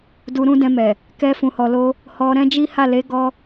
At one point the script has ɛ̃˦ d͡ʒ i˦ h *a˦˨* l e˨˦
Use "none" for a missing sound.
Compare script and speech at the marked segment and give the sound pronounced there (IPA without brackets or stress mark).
a˦˨